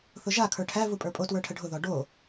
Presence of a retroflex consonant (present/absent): present